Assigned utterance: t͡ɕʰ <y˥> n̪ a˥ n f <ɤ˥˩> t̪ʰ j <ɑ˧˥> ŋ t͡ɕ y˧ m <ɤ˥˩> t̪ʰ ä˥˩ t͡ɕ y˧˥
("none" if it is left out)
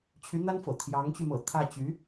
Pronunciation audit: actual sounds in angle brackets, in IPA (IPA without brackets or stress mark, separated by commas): y˧˥, ɤ̰˨˩, ɑ˧˥, ɤ̰˨˩